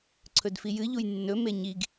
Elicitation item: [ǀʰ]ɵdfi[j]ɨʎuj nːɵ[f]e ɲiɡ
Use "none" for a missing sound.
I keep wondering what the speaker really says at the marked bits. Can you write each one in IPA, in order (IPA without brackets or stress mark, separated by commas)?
ǀʰ, j, m